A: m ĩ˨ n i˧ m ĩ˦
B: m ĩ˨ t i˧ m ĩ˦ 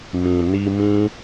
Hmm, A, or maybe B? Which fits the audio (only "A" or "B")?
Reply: A